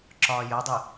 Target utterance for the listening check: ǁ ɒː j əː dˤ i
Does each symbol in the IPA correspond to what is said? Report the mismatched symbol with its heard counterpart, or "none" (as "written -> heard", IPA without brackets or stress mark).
none